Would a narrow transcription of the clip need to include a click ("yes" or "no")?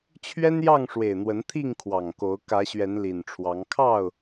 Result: no